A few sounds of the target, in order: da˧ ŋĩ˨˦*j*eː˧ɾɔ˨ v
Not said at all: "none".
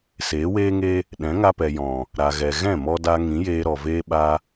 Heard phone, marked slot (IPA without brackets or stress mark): j